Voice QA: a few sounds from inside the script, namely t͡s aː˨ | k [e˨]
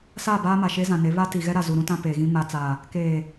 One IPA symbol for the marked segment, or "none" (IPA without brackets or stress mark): eː˨